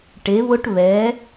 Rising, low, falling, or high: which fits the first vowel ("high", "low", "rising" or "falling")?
rising